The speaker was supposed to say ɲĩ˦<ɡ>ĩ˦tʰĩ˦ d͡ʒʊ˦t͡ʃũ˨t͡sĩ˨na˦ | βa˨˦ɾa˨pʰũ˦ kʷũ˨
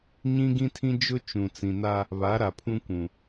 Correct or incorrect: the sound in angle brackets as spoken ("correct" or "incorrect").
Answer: correct